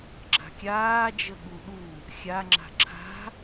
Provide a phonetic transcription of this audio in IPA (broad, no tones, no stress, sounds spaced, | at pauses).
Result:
ɡ͡ǁ a̤ kʲ aː d͡ʒ ə ɠ u ɗ u | xʲ a ŋ͡ǁ a̤ ǁʰ a̤